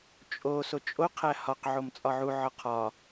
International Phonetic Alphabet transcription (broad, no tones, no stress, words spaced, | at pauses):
t͡ʃʼo sot͡ʃʼo qʰæhɒq ʕomt͡sʼɒʕu ʕɒqʰɒ